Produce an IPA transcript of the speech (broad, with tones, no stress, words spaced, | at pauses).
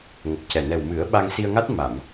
ŋə˨˩k̚cɛ˨˩ nɛ˨˩wmɨ˨˩˦ə̯ɓa˧ŋ si˧ə̯ŋa˦˥t̚ ma˨˩˨m